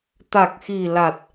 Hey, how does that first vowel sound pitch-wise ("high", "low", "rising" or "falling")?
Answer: low